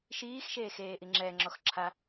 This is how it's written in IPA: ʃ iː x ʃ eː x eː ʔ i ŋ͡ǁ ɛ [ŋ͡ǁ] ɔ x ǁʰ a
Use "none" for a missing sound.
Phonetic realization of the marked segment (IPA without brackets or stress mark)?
ŋ͡ǁ